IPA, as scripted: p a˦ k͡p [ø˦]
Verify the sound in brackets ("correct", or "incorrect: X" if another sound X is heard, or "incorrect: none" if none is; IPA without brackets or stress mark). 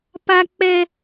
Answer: incorrect: ɛ˦